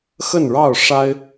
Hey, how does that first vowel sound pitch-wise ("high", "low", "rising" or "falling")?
falling